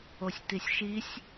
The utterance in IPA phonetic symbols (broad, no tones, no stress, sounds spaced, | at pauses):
o sʲ t i sʲ ʃ i sʲ